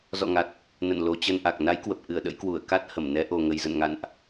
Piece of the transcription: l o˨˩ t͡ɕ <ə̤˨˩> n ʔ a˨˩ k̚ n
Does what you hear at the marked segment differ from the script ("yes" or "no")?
yes